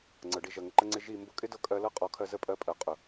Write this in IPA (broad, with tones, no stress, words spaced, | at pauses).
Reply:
ŋ͡ǀɤ˨ɖi˧ʒɜ˨ ŋə˧ǃə˦ ŋ͡ǀɪ˧ ʒi˦˨mbʊ˦ kʼɪ˦dɤ˧kʼɜ˧ lɤ˦qʼɔ˨˦ kʰɜ˧zə˦˨pʼɜ˧pʼɜ˨ qʼʊ˨